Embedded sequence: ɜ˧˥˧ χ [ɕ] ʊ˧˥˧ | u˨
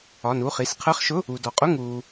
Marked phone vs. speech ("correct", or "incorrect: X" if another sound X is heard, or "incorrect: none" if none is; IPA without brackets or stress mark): incorrect: ʃ